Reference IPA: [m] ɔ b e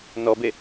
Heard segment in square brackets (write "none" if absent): n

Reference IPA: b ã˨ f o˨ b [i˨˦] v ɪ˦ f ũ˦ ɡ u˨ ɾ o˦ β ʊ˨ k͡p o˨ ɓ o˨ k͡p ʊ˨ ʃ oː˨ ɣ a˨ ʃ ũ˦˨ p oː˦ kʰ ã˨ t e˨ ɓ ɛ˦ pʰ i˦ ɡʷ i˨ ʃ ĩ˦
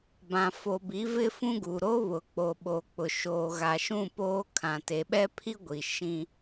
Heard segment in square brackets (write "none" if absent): i˨˦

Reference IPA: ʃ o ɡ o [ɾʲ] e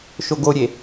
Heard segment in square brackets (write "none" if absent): ɾʲ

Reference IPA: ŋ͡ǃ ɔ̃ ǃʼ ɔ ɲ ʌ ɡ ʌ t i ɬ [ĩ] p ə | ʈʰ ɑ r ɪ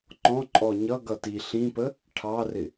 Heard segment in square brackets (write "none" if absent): ĩ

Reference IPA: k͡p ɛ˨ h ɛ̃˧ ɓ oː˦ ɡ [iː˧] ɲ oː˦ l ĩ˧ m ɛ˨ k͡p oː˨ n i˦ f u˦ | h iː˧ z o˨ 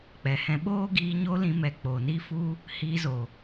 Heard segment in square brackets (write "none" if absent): iː˧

